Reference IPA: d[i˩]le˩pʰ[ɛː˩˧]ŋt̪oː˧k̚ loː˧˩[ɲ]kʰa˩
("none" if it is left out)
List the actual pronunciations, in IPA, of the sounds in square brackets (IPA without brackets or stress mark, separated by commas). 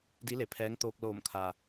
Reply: i˧˥, ɛː˧˥, m